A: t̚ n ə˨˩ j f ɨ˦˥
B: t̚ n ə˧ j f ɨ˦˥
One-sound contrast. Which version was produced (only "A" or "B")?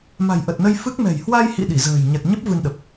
B